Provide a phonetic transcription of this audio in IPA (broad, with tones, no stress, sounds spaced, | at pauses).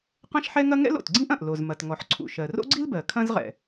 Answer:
q ɐ̃˥ ʃ ħ ɛ˥ ŋ ɐ˥ ŋ ɛ̰˥ l o̰˩ t ɡ͡ǀ ĩ˥ ʔ ɐ̃˩ ʔ l o˩ z m ɐ˩ t ŋ ɔ˩ ħ ǀʰ ṵ˩ ʃ ɜ˩ r o̰˥ ɡ͡ǀ i˥ l b ɜ˩ kʰ ɐ̃˥ z ʁ ɛ̰˩